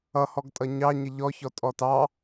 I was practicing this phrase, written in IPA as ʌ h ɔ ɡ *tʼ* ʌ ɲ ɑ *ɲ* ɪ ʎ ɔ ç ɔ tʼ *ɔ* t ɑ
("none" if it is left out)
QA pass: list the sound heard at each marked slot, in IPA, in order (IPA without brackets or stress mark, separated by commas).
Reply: tʼ, ɲ, ɔ